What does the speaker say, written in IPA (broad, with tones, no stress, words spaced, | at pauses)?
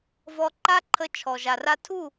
vɔ˧ǃa˦ǃʰə˧ t͡ʃʰɔ˨ʒa˨ra˧ tʰu˦˨